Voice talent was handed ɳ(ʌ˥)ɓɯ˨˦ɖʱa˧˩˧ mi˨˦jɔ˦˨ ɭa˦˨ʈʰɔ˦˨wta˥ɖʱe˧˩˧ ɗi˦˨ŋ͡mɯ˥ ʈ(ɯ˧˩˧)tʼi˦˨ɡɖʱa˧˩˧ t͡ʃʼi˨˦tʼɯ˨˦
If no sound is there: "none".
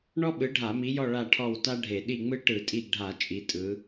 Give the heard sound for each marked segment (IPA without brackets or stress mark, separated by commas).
ɔ˥, ɯ˧˩˧